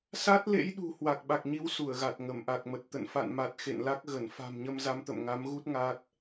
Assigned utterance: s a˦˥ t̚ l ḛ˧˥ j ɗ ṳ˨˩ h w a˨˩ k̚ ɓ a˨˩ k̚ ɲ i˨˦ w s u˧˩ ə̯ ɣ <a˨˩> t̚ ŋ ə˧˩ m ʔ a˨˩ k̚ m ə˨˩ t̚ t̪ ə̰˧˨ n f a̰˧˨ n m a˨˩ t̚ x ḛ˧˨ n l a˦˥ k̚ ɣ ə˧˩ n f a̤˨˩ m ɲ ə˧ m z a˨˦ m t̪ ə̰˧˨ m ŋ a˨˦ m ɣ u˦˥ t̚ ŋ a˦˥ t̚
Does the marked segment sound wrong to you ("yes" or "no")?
no